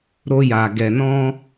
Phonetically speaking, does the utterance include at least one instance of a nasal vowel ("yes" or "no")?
yes